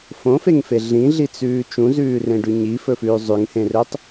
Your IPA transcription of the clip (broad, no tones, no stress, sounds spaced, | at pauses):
f õ f e ŋ f e ɮ ĩ ɮ i t͡s ʉː t͡ʃ ũ z ʉː r ẽ ɖ ʉ ɲ i f ɵ f ʉː zˤ ʉ ŋ h ẽ r ɵ tˤ